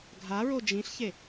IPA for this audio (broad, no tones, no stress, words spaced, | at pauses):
ɡʱaɹo d͡ʒĩɬçe